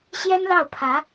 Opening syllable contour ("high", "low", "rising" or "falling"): high